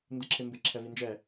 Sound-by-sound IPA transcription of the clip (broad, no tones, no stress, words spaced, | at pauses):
ndɯǁʰɪmbɪ ǁʰɛvind͡ʒɛ